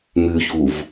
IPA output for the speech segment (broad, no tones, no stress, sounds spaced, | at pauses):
m ʉ ç u v